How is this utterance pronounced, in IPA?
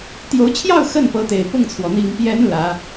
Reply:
t̪ j o˧˥ ʊ̯ t͡ɕʰ j ɑ˥˧ ʊ̯ x ə˥˩ n p ɤ˧˥ t̪ e˨˩ ɪ̯ p ʊ˥˩ ŋ t͡sʰ w ɔ˩ n̪ i˨˩ ŋ p j ɛ˧˥ n l ä˧˥

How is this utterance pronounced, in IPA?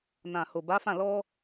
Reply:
n ã˨ h o˨ b a˨˦ f ã˦˨ l ɔ˧

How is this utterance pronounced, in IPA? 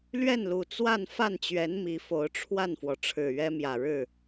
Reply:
l ɥ ɛ˥˩ n l u˨˩ t͡s w a˥˧ n f a˥˩ n t͡ɕ ɥ ɛ˧˥ n m i˧˥ f o˧˥ ʊ̯ ʈ͡ʂʰ w a˥˩ n f w ɔ˩ ʈ͡ʂʰ ɻ̩˨˩ ɥ ɛ˥ m j ä˨˩ ɻ ɻ̩˥˩

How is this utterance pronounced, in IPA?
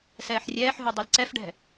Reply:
s ɛː ħ rʲ ɛː ħ ɦ u dˤ u l ǀ ɛ f ɖ ɛ̤

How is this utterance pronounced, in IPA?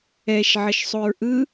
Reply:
ɛ ʃ ʕ ə ʃ sˤ u ɹ ʔ ɯ

